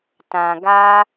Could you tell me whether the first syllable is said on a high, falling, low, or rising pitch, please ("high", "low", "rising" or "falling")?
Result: low